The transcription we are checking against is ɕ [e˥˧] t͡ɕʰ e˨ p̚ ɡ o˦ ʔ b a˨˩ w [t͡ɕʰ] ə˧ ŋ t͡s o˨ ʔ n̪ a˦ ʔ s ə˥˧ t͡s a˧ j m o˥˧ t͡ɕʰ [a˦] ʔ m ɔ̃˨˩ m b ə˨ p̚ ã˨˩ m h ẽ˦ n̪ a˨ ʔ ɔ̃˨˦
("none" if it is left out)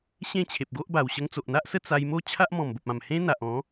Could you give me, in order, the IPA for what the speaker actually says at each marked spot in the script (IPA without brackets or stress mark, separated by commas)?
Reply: ẽ˥˧, ɕ, a˦